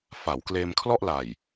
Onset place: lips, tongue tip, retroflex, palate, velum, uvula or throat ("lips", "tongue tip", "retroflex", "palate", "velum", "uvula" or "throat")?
lips